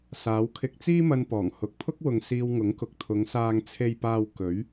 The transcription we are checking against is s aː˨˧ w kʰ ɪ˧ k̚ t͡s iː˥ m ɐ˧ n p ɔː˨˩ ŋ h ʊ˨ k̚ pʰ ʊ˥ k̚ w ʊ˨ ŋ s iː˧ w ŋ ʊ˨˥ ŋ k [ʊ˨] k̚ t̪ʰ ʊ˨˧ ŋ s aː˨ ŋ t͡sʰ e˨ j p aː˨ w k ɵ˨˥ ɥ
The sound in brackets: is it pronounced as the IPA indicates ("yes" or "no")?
yes